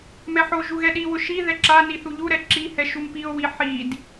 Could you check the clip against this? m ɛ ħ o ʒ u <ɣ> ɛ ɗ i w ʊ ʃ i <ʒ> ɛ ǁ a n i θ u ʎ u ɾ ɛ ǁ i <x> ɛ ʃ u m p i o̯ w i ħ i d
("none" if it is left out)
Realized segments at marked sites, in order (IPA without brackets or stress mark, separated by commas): ɣ, ð, h